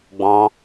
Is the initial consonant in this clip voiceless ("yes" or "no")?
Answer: no